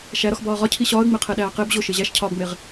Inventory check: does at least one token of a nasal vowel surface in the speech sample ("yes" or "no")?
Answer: no